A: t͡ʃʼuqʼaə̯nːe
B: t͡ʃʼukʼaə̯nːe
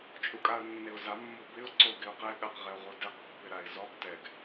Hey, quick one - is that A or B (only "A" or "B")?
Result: B